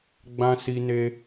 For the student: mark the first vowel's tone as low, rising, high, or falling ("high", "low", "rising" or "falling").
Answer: high